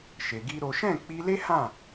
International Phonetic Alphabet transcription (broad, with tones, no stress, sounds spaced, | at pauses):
ʃ e˧ ɡ i˦ ɾ o˦ ʃ ɛ̃˦˨ k͡p i˧ l e˦ h ã˦˨